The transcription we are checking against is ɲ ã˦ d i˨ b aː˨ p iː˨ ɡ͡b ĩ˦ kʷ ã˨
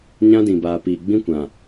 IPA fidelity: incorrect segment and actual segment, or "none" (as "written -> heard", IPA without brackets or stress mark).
i˨ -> ĩ˨